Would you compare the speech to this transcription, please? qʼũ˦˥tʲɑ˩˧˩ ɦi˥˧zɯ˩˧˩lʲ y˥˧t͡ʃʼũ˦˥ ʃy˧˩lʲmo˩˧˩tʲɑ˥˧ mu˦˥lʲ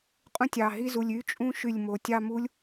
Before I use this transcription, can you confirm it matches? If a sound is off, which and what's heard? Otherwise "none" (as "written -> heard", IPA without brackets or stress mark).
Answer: ɯ˩˧˩ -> u˩˧˩